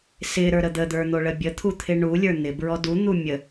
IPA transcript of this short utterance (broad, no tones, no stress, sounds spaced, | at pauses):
s ɪ ɾ ə˞ ɾ ə d̪ ə d̪ ə˞ n̪ o ɭ ə bʲ ə t̪ʰ u t̪ʰ ɪ ɳ u lʲ ə˞ n̪ ɪ b ɹ ɔ d u n̪ u mʲ ə